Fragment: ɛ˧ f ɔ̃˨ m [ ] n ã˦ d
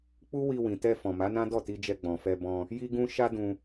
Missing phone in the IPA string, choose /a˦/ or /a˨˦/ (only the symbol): a˨˦